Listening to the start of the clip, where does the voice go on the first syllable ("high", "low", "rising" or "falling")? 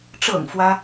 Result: low